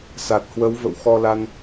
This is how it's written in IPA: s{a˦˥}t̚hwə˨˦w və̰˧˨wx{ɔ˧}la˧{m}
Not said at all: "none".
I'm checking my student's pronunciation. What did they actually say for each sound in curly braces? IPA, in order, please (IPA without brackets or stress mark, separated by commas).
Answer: a˨˩, ɔ˧, n